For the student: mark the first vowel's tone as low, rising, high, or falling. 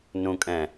low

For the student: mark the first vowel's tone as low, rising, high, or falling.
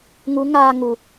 rising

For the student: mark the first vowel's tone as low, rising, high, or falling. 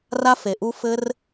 high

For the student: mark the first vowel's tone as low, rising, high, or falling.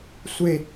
falling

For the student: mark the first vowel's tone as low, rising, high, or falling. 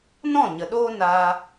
falling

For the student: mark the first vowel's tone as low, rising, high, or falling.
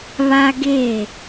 high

